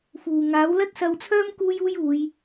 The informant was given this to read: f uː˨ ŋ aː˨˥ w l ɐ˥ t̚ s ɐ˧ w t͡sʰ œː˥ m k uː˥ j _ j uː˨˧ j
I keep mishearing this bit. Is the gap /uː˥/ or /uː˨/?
uː˥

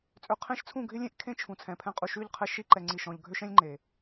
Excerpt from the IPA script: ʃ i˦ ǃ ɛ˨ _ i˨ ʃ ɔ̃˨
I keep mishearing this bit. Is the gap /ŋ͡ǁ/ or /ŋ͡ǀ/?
ŋ͡ǀ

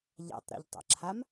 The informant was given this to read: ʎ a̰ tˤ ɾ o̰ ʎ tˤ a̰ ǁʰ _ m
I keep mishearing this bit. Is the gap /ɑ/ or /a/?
a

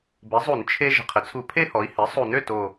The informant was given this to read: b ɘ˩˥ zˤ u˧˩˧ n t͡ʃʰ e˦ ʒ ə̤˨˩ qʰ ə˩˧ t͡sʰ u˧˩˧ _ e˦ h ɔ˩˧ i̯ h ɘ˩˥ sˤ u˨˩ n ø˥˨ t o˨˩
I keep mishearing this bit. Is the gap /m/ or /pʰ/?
pʰ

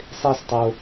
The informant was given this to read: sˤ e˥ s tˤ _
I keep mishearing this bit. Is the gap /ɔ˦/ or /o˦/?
o˦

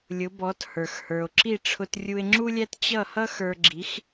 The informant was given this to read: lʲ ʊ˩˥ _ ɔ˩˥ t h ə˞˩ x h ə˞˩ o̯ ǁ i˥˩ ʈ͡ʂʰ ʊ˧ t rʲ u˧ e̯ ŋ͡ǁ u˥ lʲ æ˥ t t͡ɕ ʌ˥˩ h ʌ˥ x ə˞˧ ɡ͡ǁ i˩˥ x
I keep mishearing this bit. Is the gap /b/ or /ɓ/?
b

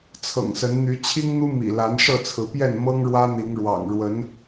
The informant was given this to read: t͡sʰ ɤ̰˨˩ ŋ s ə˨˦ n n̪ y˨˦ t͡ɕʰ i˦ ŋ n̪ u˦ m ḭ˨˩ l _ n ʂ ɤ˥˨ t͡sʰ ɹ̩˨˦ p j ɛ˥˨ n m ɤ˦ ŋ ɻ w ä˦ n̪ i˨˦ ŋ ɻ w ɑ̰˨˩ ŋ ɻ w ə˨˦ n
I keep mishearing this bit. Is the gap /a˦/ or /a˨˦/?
a˨˦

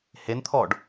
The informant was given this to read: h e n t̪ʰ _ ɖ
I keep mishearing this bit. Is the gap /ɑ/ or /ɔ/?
ɔ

